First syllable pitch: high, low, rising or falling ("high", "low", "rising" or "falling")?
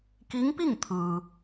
rising